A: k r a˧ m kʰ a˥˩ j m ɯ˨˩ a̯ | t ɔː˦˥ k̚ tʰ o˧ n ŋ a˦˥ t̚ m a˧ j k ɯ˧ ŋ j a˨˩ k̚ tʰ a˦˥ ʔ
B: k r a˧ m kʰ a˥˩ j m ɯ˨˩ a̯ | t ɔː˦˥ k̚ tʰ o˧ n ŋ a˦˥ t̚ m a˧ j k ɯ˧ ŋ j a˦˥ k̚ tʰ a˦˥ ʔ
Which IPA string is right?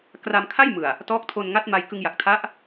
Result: A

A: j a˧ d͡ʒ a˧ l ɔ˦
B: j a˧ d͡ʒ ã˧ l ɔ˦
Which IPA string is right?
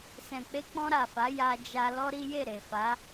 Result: A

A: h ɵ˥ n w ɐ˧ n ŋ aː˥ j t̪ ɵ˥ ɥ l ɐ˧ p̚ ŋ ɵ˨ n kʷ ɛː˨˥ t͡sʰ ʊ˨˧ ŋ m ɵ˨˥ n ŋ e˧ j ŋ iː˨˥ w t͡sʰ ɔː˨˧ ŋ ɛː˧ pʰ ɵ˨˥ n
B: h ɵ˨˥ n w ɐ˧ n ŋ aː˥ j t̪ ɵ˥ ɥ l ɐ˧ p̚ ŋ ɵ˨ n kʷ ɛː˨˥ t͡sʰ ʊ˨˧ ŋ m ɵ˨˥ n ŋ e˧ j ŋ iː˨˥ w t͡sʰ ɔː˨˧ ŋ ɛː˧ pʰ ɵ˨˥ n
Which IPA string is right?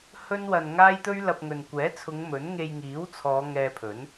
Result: A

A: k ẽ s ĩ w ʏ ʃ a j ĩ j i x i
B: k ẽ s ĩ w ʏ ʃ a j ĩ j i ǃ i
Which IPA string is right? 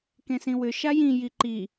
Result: B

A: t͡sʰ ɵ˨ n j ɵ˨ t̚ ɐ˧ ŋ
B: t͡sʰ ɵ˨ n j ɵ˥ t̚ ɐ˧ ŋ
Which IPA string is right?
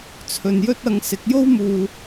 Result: B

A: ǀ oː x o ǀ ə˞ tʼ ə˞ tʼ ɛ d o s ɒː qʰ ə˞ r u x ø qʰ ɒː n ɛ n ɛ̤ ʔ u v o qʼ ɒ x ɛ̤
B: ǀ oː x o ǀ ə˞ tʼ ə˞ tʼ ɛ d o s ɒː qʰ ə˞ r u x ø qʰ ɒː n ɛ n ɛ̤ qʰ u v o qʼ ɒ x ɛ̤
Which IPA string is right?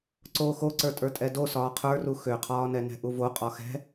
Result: A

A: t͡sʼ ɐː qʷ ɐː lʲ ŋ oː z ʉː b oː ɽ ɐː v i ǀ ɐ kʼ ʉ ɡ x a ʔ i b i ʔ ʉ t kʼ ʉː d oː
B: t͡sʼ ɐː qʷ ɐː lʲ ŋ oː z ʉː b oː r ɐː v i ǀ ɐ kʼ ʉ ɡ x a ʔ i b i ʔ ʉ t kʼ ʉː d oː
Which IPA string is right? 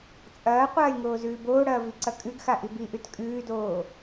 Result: A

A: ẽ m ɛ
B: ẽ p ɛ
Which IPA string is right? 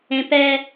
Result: B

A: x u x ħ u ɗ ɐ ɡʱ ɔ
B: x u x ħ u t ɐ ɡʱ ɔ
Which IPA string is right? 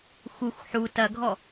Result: B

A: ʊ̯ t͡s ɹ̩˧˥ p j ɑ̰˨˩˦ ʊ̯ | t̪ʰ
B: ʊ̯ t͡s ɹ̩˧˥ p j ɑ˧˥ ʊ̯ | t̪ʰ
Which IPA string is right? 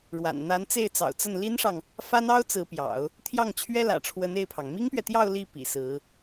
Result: A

